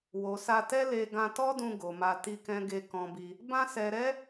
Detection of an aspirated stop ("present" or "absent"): absent